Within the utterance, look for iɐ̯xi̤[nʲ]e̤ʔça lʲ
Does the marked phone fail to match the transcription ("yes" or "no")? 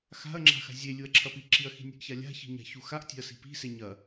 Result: no